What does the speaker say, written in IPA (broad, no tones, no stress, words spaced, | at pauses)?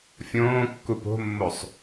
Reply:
fʲõːkːup o̤mːosˤ